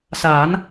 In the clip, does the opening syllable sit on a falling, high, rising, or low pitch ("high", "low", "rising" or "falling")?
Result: rising